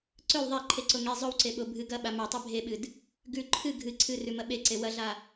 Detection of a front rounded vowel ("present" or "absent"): absent